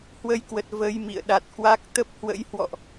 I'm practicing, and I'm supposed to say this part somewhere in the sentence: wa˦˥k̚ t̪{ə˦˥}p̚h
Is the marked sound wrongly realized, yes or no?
no